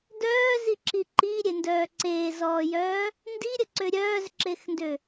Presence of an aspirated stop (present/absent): absent